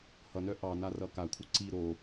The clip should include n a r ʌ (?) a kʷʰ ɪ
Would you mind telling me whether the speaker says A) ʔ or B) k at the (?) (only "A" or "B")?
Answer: B